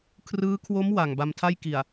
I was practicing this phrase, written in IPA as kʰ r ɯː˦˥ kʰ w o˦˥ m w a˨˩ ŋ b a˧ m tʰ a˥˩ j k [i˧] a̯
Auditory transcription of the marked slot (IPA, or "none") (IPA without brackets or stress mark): i˨˩